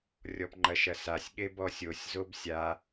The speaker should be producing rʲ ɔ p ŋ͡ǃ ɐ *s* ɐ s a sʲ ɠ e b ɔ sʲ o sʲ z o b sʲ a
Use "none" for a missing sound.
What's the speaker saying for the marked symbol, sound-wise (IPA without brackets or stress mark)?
ʃ